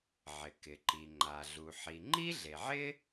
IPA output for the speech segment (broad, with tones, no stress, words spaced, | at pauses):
ʕɪ˩kɪ˩ǃi˩ ŋ͡ǃa˩ɮu˩ ħi˩ŋ͡ǃi˥ɮe˩ʕɪ˥